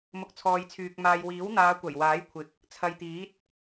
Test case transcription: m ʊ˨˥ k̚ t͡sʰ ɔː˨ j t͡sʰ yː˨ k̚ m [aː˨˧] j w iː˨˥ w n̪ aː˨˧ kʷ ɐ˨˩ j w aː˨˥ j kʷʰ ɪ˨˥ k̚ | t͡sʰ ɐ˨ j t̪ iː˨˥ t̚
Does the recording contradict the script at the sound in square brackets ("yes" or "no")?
yes